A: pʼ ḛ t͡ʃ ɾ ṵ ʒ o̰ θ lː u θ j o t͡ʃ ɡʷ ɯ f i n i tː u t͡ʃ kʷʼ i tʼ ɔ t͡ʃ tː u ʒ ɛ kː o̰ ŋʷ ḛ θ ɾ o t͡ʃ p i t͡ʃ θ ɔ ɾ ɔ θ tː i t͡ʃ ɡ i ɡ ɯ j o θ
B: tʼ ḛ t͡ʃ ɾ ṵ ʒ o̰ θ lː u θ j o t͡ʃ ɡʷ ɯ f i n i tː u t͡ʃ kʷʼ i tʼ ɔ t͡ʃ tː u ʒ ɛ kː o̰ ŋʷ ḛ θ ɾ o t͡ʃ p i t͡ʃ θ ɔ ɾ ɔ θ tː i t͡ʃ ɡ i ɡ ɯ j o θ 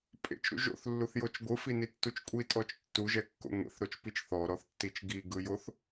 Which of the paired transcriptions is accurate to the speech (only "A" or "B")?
A